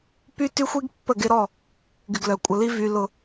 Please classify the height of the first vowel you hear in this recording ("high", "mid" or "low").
high